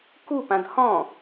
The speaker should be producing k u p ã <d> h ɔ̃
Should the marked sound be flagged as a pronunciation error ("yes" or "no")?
no